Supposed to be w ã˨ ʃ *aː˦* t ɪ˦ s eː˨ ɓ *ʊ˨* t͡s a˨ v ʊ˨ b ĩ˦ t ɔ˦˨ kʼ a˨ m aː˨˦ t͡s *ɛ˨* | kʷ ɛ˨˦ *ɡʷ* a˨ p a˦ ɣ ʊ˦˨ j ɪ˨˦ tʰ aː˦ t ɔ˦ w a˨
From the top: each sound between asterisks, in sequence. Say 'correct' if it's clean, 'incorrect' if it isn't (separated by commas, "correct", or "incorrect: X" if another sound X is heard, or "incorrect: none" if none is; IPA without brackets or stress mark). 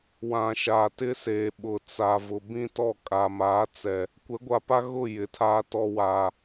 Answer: incorrect: aː˨, correct, correct, correct